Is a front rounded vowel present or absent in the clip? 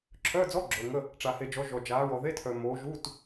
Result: present